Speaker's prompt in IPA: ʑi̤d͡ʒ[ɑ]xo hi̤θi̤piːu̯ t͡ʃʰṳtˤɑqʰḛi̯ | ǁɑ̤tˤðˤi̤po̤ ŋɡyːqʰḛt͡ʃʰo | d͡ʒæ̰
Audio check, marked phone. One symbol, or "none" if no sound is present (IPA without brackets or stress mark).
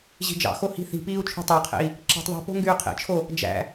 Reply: ɑ̰